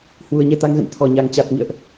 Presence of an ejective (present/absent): absent